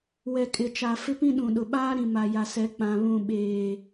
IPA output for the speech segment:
w ɛ˨ kʼ ɪ˨ t͡ʃ a˨ f ɪ˦ p ĩ˦ ɗ ũ˨ ɗ ʊ˨ ɓ aː˦ ɾ ĩ˨ m a˨ j a˨ s ɛ˨˦ k͡p ã˨ β ũ˨ ɓ eː˨

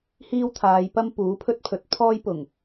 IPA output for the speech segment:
h iː˥ w t̪ʰ aː˨˧ j p ɐ˥ m p uː˨˥ pʰ ɵ˥ t̚ pʰ ɵ˨˥ t̚ pʰ ɔː˥ j p ʊ˨˩ ŋ

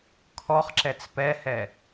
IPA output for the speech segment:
kʰ ɔ χ ǁ ɛ t͡s p ɛ h ɛ

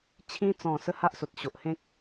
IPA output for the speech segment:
t͡ɕʰ ĩ˧ t͡s ɔ̃˨˩ s ə˦ h a˦ ʔ s o˨ t̚ ɕ o˨ ʔ h ẽ˦ k̚

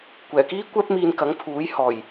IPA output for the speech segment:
kʷ ɛː˨˩ k iː˥ kʷ ɛː˧ p̚ m iː˨ n k ɐ˨˥ ŋ pʰ uː˨˥ j h ɔː˨˩ j

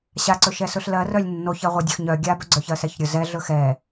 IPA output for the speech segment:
ɕ a ǀ ɵ ʃ ɛ s ɵ ɬ l ɜ r œ lʲ nː o ç ɜ ʁʷ ɛ dʲ œ x ɲ œ ɡʲ a b œ ɡ͡ǀ œ ç ɜ s ɛ ç ɾʲ ɵ z ɛ ɮ ɵ x ɛ

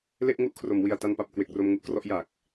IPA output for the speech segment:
l e˥˩ ʔ ŋ u˥˩ ʔ kʰ r o˩˦ m w i˨˩ a̯ t a˧ n p a˨˩ p̚ k w e˨˩ k̚ r o˧ m ŋ u˦˥ ʔ k r ɔ˥˩ ʔ j a˨˩ k̚

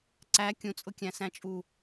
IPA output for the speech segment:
ǀ æ kʲ ũ t͡sʼ ʊ kʲ æ̃ s æ̃ t͡ʃʼ u

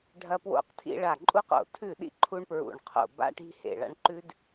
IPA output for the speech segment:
ɖʱ ɐ˦ p w o̰˦ q tʰ ḭ˦ ɭ a˧˩ ǃʼ u˦ q o̰˧˩ tʰ ʉ˧˩ ɗ ḭ˦ ǃʰ u˦ ɳ p ɹ ṵ˧˩ ɳ qʰ o̰˧˩ b a̰˦ ʈ i̤˦ h ḛ˧˩ ɭ a̰˦ ɳ ǃ ʉ˦ d

